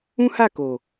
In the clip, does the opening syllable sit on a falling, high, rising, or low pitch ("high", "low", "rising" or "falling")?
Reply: high